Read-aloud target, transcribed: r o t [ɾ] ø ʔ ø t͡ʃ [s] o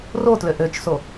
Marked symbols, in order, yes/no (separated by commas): no, yes